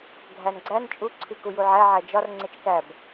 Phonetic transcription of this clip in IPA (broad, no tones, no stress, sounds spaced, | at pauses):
ɡʱ æ n ɡ͡ǀ æ n t͡ʃʼ u ǀʰ i k u j u ʕ æ ʕ æ d͡ʒ ɒ r ŋ͡ǀ e t͡ʃ k æ b